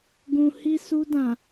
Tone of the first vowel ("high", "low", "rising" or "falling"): low